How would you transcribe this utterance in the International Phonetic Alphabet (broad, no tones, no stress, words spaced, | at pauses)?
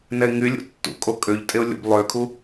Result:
nɛɪ̯ŋylʲṵ tːṵ kʼokʼøʎtʼeʊ̯ lʲo̰blˠøkʰu